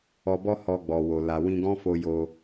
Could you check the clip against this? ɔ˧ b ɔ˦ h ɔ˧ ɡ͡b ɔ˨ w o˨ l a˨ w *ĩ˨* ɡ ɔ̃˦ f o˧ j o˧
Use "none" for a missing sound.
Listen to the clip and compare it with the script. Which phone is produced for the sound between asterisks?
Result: ĩ˧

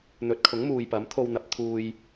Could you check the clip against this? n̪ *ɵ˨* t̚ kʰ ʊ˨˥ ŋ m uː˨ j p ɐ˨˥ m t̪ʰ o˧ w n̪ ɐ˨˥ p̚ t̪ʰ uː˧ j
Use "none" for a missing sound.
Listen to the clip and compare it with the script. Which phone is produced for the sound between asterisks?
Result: ɵ˨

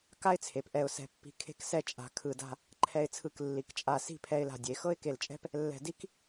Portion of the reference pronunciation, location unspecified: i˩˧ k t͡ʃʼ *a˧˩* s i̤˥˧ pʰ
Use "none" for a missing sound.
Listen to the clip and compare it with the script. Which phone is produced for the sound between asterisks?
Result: a˧˩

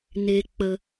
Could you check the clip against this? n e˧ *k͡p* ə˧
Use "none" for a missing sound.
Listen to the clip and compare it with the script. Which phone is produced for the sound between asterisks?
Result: k͡p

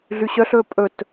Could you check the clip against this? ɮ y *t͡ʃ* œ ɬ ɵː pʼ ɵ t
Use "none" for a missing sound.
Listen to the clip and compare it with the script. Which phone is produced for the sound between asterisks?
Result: ɕ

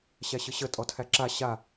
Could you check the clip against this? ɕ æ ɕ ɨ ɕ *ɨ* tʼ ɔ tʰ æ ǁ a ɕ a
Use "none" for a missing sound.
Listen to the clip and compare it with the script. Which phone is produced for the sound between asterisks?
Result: ə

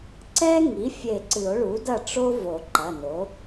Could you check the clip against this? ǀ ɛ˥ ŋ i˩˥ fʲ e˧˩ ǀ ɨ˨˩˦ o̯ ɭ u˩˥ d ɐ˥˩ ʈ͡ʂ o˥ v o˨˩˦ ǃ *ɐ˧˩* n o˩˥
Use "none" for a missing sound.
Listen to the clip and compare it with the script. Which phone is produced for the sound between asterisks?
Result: ɐ˩˧˩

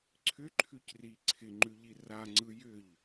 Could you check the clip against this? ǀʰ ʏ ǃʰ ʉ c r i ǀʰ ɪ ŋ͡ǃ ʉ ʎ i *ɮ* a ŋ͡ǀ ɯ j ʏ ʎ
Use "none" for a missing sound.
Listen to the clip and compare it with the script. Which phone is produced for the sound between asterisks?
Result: r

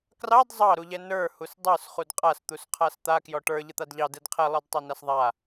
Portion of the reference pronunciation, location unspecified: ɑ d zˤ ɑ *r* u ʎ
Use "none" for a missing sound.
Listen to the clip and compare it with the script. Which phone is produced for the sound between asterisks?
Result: ɾ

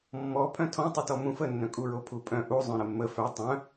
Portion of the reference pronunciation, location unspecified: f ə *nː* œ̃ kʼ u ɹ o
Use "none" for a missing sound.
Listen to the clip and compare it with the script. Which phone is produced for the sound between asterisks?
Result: nː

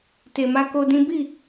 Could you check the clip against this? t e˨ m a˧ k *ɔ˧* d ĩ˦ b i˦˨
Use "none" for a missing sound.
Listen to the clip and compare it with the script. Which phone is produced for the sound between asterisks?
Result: o˧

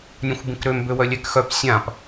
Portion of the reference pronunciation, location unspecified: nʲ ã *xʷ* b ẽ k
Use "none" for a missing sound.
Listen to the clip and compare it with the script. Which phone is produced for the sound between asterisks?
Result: xʷ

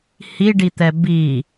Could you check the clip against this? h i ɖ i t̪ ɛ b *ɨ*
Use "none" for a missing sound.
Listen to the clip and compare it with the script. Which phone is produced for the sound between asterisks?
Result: i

